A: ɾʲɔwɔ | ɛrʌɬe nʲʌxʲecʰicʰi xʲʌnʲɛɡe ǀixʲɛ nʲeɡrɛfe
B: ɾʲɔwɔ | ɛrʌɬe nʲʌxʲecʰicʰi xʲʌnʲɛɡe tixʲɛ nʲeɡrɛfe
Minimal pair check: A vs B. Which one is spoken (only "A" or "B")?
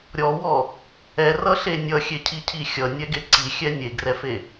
A